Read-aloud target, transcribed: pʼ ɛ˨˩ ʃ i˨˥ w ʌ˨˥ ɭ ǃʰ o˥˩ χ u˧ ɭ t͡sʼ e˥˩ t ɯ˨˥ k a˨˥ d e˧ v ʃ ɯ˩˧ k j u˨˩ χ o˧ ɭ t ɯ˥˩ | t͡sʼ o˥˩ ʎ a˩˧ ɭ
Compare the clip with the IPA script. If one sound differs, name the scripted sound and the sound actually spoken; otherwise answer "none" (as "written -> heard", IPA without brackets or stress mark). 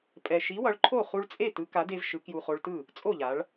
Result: none